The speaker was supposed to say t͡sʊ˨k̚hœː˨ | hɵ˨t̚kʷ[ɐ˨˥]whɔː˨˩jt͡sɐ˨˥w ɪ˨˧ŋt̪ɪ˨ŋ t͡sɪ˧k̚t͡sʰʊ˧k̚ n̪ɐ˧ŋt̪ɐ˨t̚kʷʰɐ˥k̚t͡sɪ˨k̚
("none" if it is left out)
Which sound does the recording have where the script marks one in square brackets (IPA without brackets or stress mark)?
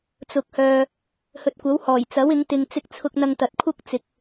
ɐ˨˥